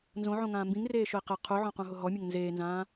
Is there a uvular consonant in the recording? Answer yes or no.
yes